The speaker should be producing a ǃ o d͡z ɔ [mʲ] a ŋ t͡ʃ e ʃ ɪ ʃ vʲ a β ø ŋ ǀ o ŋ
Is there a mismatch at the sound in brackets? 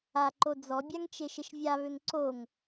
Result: yes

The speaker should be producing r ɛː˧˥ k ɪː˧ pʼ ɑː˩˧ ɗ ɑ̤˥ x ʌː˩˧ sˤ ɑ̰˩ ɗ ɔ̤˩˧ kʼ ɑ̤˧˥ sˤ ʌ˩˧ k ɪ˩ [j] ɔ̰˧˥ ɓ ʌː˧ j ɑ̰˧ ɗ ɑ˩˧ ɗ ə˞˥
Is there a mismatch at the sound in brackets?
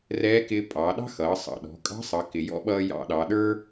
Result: no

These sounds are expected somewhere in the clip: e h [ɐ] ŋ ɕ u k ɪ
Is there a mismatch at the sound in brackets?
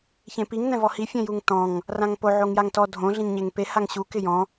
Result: yes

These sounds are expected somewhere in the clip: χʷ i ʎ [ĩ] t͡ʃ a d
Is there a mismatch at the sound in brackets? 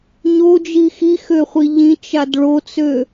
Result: no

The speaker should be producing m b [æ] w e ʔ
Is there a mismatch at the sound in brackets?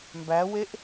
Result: no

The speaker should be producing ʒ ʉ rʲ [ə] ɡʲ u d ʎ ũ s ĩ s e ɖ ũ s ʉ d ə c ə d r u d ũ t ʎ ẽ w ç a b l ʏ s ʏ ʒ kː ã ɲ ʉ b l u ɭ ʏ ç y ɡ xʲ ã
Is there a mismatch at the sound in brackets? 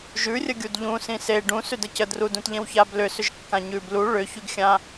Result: no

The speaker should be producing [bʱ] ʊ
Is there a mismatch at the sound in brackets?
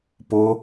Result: yes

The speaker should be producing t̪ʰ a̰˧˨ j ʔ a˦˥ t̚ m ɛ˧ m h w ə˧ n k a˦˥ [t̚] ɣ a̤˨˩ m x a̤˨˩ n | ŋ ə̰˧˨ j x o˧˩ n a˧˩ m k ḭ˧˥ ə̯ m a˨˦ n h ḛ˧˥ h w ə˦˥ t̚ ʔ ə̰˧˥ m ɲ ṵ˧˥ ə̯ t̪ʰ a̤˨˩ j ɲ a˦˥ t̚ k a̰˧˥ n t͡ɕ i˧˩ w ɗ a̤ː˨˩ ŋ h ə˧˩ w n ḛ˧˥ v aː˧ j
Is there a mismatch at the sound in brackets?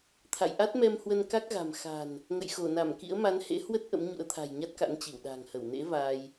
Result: yes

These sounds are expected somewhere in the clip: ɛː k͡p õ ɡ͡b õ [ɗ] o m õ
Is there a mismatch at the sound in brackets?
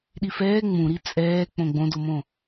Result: yes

